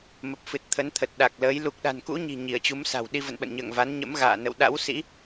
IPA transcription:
m ə˨˩ p̚ f ɨ˨˩ t̚ t̪ʰ ə˨˦ n t̪ʰ ə˨˩ t̚ ɗ a˨˩ k̚ l əː˨˦ j l u˨˩ k̚ ɗ a̤˨˩ n k ṵ˧˥ ɲ i̤˨˩ ɲ i˧˩ ə̯ t͡ɕ u˨˦ m s a̤˨˩ w ɗ i˧ v ə̰˧˨ n ɓ ə̰˧˨ n ɲ ə̰ː˧˨ ŋ v a˨˦ n ɲ ə̰˧˥ m ɣ a̰ː˧˨ n ə̰˧˨ w ɗ a̰˧˥ w s ḭ˧˥

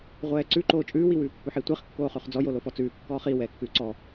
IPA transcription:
ʁʷ ɛː ǀ ʉ ǃ oː t͡ʃʼ ʉː w i w ʉː pː ʉ ħ i tʷ i χ kː oː χ ʉ χ d͡z ɔ j o l o f ɔ t͡s ʉː kː ɔː χ i w ɛː kː ʉː ǀ ɔ

